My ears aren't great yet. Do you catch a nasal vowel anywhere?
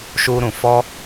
yes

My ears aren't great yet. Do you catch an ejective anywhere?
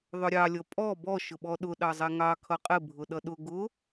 yes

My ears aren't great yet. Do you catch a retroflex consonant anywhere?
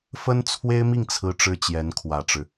yes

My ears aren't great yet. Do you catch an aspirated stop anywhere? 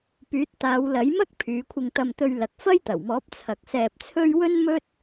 yes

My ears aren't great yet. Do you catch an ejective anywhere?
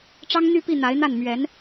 no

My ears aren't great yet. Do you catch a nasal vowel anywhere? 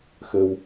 no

